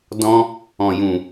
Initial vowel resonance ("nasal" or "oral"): nasal